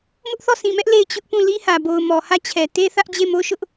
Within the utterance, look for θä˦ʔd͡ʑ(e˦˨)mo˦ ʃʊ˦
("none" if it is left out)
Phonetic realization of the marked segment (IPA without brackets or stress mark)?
e˦˨